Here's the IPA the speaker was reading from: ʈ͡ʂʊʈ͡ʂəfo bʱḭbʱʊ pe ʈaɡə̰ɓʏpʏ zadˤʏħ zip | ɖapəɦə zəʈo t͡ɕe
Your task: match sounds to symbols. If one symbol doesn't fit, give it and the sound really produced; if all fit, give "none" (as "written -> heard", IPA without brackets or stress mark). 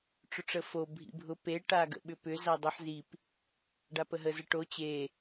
none